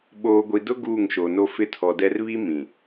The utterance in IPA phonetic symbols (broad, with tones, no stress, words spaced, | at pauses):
ɓoː˨ɡʷi˨dʊ˦ ɡuː˦˨ŋʃo˨no˦ fɪ˦tʰɔ˨dɛ˦r βi˦ mĩ˨